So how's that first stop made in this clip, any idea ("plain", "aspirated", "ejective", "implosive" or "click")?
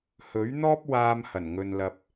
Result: plain